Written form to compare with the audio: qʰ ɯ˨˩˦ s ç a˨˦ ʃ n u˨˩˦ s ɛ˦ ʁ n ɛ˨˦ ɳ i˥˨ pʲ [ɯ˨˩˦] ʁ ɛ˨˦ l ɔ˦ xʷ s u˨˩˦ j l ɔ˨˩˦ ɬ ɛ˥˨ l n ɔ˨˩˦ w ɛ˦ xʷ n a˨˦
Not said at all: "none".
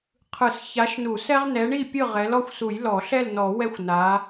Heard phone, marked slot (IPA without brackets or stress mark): ɯ˥˨